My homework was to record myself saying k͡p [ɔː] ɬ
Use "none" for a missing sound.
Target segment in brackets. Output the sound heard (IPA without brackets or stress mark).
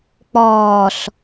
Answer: ɔː